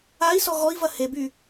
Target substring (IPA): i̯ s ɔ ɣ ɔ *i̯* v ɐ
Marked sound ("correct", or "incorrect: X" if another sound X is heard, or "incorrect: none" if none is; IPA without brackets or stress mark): correct